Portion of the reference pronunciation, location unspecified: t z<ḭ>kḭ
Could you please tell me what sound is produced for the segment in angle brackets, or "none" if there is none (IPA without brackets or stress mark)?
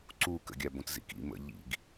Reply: ḭ